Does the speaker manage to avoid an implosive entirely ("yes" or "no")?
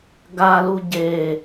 yes